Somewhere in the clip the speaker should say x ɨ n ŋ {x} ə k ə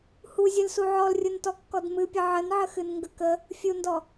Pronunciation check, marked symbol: incorrect: ɡ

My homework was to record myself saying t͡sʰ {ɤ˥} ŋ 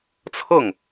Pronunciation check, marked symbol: incorrect: ɤ˥˩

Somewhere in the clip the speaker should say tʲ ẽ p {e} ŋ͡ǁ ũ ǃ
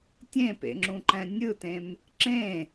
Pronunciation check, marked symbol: incorrect: ḛ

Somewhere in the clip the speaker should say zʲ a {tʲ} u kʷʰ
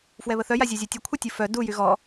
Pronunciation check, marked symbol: correct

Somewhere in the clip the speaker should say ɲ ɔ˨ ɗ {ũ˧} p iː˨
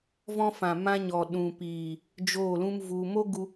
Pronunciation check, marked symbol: incorrect: ũ˨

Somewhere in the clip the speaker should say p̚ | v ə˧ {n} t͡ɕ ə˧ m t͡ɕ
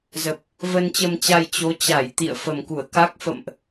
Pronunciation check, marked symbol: correct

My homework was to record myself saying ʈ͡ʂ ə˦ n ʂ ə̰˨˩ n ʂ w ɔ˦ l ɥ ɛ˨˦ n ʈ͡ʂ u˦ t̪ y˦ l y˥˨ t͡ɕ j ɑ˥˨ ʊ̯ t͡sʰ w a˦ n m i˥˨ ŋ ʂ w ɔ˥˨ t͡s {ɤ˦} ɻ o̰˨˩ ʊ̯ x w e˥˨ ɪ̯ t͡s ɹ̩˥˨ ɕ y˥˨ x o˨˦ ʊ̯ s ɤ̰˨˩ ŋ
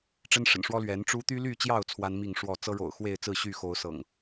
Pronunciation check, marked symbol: correct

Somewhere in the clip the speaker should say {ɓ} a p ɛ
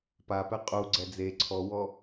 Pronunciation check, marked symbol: incorrect: p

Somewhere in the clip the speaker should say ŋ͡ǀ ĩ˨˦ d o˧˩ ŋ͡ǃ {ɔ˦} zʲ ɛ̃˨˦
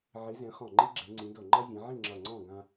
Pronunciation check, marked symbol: incorrect: ʌ˦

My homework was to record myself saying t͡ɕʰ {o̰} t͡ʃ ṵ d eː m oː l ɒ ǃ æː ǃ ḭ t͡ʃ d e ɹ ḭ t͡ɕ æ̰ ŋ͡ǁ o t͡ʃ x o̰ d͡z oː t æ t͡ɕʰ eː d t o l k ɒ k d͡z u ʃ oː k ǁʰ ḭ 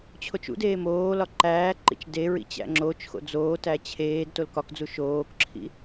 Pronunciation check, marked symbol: incorrect: o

